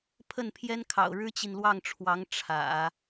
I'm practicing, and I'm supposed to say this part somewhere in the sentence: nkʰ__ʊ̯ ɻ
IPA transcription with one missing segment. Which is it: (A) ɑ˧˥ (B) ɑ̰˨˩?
B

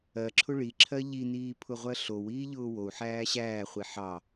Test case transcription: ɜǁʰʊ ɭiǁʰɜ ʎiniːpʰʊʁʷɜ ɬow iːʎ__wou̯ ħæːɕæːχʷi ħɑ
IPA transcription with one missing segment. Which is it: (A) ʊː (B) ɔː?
A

